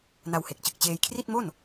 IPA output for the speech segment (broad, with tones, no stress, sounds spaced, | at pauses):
n a˧ w h e˨˩ k̚ t͡ɕ ɯ˨˩ k̚ t͡ɕ eː˧ j kʰ r i˥˩ t̚ m o˥˩ n